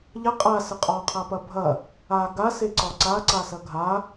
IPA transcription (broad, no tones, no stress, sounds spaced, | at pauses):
ʎ ɐ qʼ a s ə qʼ ɒ qʰ a p ɐ bʱ ɐ | a ɡ a s e ǀ ɒ ǀ a ǀ a s ɐ ɡʱ a